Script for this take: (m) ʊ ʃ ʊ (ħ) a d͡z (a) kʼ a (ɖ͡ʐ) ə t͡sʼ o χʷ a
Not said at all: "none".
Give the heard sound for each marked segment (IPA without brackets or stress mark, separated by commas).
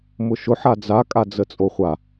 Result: m, ħ, a, d͡z